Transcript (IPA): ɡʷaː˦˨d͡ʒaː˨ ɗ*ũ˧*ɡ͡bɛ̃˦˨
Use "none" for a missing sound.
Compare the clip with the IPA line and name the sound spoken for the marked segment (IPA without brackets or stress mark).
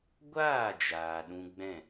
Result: ũ˧